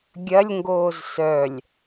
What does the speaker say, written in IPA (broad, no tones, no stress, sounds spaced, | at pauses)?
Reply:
ɡʲ ɐ lʲ ŋ ɡ oː z s œ lʲ